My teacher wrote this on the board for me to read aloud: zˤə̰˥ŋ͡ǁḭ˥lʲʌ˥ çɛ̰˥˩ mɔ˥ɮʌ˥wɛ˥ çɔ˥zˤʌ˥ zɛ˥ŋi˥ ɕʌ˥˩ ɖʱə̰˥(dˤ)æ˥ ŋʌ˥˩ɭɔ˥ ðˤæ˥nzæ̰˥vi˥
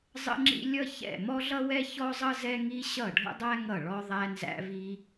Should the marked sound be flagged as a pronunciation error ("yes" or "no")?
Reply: no